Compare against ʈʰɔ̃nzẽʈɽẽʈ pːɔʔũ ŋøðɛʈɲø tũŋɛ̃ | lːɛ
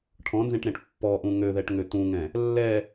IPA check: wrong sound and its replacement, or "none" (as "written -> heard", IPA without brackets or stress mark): ɲ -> ŋ